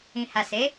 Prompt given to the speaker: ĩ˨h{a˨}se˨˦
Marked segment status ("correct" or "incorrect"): correct